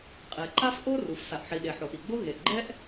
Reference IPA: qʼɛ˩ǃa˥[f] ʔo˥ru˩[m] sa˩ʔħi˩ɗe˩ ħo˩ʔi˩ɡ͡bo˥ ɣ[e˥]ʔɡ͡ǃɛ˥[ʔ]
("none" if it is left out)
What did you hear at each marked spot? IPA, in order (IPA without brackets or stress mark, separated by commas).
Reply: f, f, e˩, ʔ